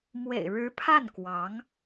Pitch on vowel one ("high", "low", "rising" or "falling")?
low